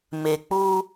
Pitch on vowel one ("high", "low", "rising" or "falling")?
low